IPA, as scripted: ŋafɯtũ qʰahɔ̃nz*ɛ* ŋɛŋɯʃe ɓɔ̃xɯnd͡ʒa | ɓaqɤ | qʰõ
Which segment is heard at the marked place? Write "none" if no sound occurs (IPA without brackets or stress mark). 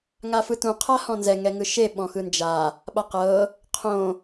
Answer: ɛ